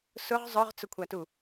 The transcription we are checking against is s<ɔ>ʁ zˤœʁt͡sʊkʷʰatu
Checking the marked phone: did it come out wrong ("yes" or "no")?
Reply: yes